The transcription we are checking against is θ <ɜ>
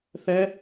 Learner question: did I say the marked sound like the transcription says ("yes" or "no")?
no